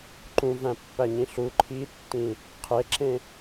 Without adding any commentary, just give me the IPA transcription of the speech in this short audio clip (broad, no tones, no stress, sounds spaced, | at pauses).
ǃ ũ v æ̃ pː æ ɲ ĩ ɬ u ǃʰ i tː ĩ | qʰ e ǁ ẽ